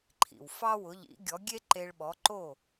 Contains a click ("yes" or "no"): yes